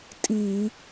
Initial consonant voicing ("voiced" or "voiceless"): voiceless